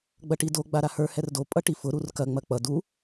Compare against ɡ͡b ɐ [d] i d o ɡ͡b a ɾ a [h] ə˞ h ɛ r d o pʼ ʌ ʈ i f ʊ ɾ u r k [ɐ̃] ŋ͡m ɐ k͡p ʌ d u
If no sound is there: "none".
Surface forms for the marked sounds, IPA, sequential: ʈ, h, ɐ

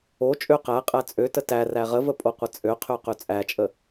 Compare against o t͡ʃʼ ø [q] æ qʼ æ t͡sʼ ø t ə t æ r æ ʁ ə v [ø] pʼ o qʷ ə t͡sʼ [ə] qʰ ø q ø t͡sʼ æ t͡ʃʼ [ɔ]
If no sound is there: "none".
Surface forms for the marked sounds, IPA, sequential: q, ə, ø, ə

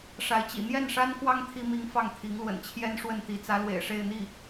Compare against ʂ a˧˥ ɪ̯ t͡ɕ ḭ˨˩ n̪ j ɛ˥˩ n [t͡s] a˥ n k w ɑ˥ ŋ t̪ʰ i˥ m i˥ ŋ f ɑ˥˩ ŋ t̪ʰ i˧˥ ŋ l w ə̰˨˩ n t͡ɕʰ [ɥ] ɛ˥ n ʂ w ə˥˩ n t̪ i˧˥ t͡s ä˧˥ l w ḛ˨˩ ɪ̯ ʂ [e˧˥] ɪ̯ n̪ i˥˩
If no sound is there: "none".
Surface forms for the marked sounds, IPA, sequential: ʂ, j, e˥˧

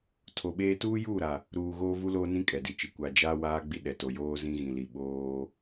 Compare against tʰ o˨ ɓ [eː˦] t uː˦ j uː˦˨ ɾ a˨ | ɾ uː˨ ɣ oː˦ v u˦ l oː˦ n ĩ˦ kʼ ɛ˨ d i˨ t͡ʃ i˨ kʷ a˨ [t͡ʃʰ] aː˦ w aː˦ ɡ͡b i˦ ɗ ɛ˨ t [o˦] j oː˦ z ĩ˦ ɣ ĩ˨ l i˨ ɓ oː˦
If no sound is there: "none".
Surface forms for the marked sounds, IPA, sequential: eː˦, d͡ʒ, o˨

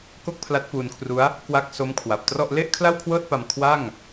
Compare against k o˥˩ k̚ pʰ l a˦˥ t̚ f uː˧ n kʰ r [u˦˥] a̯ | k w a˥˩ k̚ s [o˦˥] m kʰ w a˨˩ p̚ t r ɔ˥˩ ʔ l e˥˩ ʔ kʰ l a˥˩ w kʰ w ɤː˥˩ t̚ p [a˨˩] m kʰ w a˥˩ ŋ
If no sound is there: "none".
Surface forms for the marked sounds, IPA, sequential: u˦˥, o˦˥, a˧

